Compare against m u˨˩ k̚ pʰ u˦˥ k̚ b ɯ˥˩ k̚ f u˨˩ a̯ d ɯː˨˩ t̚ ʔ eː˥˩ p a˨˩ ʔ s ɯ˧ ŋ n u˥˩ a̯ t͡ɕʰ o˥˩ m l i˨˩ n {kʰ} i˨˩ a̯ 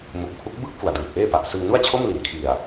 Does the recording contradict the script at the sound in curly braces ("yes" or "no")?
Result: no